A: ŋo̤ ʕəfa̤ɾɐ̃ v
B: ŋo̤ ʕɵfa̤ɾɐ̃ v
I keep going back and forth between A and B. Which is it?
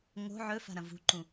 B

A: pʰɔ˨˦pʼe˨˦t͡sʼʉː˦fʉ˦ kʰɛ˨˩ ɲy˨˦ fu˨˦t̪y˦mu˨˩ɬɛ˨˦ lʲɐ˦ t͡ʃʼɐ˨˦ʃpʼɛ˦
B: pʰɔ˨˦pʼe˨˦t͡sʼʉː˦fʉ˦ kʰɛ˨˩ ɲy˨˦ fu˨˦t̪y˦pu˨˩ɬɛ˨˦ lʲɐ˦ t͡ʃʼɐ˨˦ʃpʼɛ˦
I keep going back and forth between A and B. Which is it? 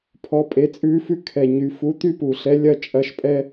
B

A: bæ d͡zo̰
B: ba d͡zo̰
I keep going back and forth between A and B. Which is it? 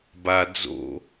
B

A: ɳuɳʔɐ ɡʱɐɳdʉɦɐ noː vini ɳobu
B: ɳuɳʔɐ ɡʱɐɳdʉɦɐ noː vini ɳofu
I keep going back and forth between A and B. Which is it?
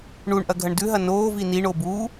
A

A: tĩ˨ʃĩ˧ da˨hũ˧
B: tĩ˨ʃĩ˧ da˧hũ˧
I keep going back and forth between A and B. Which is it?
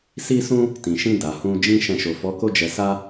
A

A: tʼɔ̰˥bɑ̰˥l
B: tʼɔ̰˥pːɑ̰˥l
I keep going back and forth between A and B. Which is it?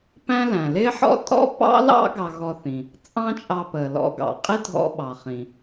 B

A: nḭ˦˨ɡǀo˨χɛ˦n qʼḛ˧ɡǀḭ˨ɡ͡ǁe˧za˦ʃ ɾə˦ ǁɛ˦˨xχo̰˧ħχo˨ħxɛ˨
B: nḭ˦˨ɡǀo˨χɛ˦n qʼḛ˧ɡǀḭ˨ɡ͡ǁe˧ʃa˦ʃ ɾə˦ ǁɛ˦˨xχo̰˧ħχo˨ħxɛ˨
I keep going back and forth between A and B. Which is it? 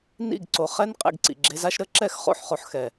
A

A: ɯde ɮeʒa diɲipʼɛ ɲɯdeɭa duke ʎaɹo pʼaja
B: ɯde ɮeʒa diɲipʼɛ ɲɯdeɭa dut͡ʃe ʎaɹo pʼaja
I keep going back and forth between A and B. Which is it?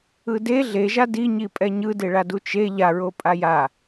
B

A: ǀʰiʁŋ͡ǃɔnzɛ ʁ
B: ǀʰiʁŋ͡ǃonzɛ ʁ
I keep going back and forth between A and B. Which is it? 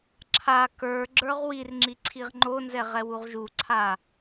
B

